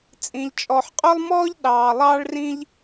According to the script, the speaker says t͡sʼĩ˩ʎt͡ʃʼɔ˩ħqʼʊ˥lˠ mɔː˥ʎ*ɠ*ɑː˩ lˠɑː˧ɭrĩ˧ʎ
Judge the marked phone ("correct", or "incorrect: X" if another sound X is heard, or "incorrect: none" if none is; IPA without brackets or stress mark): incorrect: ɗ